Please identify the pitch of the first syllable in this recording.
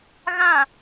falling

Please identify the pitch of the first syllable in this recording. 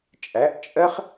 rising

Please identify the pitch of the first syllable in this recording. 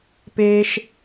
high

